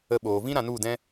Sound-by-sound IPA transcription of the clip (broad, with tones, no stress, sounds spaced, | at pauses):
ə˧ ɓ oː˨ v ĩ˦ ɾ ã˧ n u˦˨ d ɛ̃˦